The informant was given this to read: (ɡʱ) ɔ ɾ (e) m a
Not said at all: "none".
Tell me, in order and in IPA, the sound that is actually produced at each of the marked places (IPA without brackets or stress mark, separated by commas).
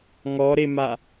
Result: ŋ, e